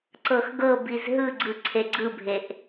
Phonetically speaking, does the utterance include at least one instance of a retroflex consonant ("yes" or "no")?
no